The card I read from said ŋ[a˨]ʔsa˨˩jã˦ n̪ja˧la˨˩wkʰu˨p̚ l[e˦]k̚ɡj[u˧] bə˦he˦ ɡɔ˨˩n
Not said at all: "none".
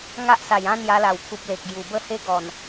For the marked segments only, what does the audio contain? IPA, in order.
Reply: a˦, e˨, u˨˩

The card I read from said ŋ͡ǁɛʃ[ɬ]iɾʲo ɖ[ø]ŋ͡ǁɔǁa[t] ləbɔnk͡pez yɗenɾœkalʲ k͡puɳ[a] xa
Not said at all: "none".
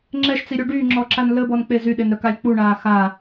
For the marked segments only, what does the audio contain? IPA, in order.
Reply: t͡s, y, n, aː

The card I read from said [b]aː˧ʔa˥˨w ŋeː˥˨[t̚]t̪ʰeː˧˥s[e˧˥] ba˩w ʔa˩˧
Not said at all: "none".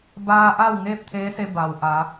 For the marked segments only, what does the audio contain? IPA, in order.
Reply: b, p̚, e˧

